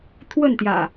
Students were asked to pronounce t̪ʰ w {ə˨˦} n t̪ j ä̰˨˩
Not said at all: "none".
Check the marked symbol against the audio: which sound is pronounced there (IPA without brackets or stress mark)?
ə˥˨